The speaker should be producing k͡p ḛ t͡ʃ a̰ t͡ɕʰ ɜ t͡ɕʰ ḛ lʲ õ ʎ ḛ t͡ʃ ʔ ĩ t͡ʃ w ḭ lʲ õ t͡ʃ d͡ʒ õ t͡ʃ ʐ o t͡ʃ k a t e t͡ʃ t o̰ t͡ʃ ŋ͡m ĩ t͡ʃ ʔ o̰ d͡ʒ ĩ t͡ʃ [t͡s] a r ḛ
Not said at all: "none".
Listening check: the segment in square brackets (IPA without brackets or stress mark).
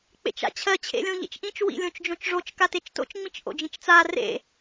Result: t͡s